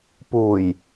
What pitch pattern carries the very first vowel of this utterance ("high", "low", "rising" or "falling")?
low